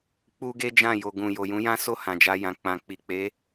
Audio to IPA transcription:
k͡p u˦ ɡ e˦ d͡ʒ ã˦˨ j o˨ ɡ ũ˨ j o˨ j ũ˨˦ j ã˦ s o˦˨ h ã˨ d͡ʒ a˧ j ã˨ k͡p ã˨ k͡p i˨ k͡p e˨˦

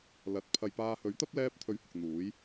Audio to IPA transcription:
l ɐ˨˥ t̚ pʰ ɐ˨ j p aː˧ h ɵ˨˥ ɥ t̪ ɐ˥ p̚ l ɛː˥ p̚ t̪ʰ ɵ˧ ɥ h ʊ˨ k̚ n̪ uː˨˥ j

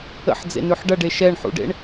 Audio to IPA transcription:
ə̰ ħ d͡z ḛ n ʉ ħ ɖ ɐ ɖ e ʃ ɛ ɳ ħ ṵ ɖ ḛ ɳ

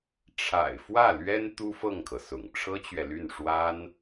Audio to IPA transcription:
ʈ͡ʂʰ a̰˨˩ ɪ̯ f w ä˥˩ l ɥ ɛ˥ n t̪ u˥ f ɤ˥˩ ŋ kʰ ɤ˩ s ʊ̰˨˩ ŋ ʈ͡ʂʰ ɤ˥ t͡ɕ ɥ ɛ˨ l y˥˩ n ʂ w a˥ n

